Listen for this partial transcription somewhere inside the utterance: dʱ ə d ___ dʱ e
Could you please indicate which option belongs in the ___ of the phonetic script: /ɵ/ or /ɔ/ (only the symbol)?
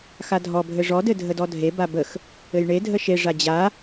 ɔ